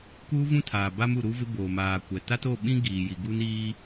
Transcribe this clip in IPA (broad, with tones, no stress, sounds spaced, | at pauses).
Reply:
k uː˦ v ũ˦ tʰ aː˨ b a˦ m u˨ ɾ u˦ v ɪ˦ b oː˨ m aː˨ kʷ ɛ˨ t a˦ t o˦˨ ɓ ĩ˦ ɡ iː˨ j i˨ ɡ u˦ n iː˦